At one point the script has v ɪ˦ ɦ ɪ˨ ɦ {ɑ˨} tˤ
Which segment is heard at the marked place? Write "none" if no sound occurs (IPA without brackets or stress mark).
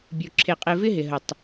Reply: ə˨